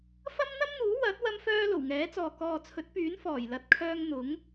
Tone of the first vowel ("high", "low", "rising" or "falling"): high